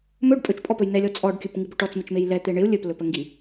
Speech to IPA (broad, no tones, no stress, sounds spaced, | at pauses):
m ɵ ɖ pʼ ɵ t͡ʃ pʼ ɔ p ɵ j n ɛ lʲ ɔ t͡sʼ ɔ ɖ kʲ ɵ p ŋ i b ɵ ʈ ɔ t͡s m ɪ t͡ʃ m e j l ɛ t̪ e ɳ ɪ u̯ lʲ ɵ p l ɵ p ə ŋ ɡ i